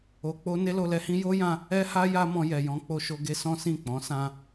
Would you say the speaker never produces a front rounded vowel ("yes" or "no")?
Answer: yes